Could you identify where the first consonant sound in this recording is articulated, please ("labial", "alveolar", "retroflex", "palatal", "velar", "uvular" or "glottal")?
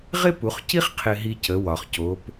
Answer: uvular